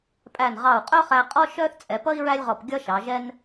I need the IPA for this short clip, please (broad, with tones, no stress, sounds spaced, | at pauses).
pʼ æ˧˩ n ʁ ɑ˧˩ u̯ qʼ œ˥ χ æ˧ qʼ ɔ˥ ʃ œ˥ θ t͡sʼ ɛ˩˧ p ʌ˥ i̯ ɹ æ˥ lʲ ʁ ɔ˧˩ p ɡʲ ʌ˥ ʃ ɑ˩˧ ʒ ɛ˥ n